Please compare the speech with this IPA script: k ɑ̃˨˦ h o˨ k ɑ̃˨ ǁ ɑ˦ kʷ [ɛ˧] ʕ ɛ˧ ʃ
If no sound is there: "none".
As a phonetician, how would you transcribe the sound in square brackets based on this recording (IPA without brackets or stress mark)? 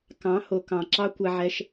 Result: ɛ˧